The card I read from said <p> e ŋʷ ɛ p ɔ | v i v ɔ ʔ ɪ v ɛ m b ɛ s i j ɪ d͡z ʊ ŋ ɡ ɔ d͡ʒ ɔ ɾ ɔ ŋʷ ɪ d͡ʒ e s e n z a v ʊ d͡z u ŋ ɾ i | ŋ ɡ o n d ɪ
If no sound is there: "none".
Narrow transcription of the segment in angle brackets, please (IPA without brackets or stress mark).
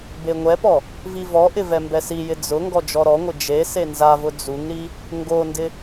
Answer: b